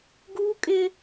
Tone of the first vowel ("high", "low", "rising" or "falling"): high